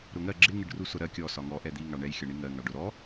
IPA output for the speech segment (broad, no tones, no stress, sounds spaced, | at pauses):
ɾ ʊ ŋ ɜ ɡ͡ǁ ɪ ŋ ɪ ɖ r u s ʊ ɾ ɜ kʲ ɔ s ɒ ŋ ɔ ʔ ɛ d̪ i ŋ ɑ ɳ ɛ j xʲ ʌ ɳ i ŋ ɜ ŋ ɑ ɖ ʊ ɾ ɔ